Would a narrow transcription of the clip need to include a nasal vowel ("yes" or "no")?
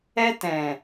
yes